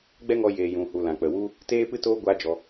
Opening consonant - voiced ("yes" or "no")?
yes